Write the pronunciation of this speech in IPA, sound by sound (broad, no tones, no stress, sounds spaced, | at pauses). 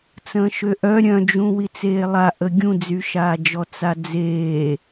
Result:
t͡s ə̃ː ʃ ø ʔ œ ɾʲ œ̃ d͡ʒ ũ w i t͡s eː lˠ a ʔ ə ɡʲ ũ d͡z y ʃ aː d͡ʒ ɔ t͡s a d͡z eː